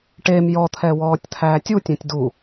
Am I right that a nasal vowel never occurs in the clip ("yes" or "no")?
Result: no